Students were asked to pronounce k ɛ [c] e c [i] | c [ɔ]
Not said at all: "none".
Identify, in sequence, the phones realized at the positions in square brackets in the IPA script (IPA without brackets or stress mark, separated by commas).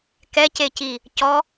c, i, ɔ